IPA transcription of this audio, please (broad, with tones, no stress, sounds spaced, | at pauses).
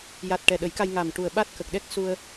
j a˨˩ t̚ ʈ ɛ˨˩ ɗ ə˨˩˦ j k a˧ j ŋ a˨˩ m ʈ u˨˩ ə̯ ɓ a˦˥ t̚ k ə˨˩ k̚ ɗ ɛ˦˥ k̚ s u˧ ə̯